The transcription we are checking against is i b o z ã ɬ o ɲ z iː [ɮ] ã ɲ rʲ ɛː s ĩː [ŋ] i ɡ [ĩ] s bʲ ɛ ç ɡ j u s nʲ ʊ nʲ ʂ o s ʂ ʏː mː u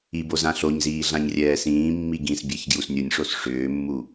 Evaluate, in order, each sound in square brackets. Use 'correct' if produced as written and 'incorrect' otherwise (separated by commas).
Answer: correct, incorrect, correct